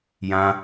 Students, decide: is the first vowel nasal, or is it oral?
nasal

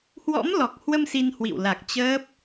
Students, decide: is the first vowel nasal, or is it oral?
oral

